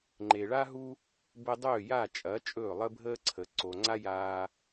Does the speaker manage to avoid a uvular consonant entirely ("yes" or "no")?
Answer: yes